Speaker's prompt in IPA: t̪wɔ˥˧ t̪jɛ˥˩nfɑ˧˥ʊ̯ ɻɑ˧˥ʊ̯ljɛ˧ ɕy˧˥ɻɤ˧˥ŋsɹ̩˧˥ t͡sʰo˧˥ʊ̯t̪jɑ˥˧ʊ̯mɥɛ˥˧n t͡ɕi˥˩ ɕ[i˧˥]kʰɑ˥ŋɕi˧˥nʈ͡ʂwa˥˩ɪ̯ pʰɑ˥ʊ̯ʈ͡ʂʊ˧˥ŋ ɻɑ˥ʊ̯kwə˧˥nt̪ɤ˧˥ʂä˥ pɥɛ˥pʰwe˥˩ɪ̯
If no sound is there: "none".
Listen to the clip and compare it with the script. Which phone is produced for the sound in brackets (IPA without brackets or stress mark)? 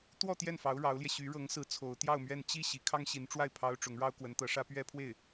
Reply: i˧˥